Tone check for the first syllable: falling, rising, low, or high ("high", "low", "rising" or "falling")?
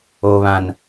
low